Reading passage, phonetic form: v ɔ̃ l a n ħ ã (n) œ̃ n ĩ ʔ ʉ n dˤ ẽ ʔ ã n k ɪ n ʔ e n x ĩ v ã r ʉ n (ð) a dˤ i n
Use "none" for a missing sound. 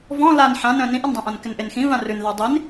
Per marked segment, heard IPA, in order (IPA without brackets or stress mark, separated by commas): n, ð